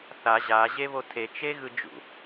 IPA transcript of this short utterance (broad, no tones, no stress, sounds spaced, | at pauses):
θ a ʑ a ʑ e β o tʰ e t͡ʃ e ɣ ɯ d͡ʒ ṵ